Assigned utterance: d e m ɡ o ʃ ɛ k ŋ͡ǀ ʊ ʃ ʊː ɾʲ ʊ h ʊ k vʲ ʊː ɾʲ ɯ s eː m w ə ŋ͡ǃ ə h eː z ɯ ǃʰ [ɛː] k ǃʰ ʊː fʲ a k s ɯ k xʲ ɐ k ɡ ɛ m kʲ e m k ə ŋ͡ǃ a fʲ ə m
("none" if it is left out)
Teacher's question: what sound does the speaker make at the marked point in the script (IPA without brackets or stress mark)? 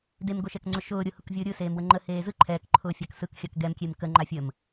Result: ɛː